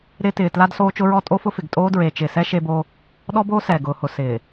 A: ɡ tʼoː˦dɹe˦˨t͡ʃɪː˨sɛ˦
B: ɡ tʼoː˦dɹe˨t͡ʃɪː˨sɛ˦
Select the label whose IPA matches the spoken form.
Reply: B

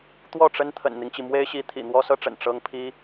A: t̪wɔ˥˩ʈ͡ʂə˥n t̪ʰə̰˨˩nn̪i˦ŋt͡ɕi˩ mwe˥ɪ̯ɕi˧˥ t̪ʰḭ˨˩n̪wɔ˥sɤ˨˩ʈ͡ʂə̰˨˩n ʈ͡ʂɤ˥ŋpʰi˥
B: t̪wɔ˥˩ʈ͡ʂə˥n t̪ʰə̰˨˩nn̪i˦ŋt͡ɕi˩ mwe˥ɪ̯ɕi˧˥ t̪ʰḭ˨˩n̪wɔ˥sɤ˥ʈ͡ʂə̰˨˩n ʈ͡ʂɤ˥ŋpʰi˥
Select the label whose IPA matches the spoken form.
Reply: B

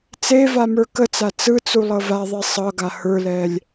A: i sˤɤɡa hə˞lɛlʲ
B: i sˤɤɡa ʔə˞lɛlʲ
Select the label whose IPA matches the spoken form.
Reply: A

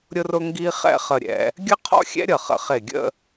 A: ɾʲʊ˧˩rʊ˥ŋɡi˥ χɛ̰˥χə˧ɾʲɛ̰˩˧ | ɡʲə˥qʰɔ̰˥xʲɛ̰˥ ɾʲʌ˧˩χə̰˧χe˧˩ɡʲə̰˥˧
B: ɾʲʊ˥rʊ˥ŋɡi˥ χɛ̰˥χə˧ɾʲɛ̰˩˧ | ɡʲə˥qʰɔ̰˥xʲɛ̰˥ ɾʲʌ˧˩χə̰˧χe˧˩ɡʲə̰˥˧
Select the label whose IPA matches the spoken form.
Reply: B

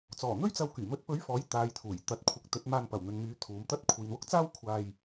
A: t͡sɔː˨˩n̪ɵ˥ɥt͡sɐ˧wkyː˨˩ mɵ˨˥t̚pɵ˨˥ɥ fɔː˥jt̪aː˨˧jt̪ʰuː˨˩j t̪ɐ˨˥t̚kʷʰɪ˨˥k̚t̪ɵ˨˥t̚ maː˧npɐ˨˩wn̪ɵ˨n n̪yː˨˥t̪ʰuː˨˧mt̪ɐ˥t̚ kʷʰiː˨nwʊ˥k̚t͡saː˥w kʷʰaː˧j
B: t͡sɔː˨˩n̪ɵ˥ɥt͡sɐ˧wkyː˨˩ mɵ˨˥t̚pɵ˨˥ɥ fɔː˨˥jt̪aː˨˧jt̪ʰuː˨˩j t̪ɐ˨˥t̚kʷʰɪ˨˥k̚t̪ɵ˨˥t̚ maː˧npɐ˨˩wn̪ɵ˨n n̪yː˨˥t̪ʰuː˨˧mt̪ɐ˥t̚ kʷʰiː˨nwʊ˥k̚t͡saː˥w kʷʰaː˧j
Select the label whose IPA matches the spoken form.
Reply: B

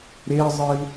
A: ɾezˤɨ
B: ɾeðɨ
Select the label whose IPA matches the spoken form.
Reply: A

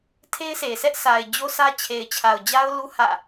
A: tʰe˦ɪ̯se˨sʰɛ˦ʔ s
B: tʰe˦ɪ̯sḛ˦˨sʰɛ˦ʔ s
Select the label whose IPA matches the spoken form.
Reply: A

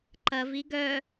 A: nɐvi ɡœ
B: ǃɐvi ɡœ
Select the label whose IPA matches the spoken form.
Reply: B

